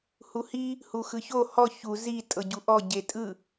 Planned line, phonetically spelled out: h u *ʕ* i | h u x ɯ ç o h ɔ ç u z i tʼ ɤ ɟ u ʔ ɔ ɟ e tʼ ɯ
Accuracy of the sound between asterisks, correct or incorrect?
incorrect